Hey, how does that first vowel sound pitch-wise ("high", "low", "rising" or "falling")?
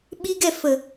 high